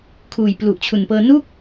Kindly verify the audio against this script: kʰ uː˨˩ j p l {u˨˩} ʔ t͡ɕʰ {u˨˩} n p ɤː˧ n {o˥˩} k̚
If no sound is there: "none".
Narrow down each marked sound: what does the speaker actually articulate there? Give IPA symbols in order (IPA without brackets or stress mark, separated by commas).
u˨˩, u˨˩, u˥˩